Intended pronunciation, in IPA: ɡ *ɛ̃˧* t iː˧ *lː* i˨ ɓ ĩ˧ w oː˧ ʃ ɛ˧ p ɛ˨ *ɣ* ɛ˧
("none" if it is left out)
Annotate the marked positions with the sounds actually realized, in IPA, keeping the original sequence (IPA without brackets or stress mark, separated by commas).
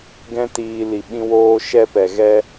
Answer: ɛ̃˦, l, ɣ